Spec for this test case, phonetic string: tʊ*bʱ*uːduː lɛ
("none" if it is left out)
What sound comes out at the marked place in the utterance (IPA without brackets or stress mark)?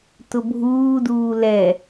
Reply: bʱ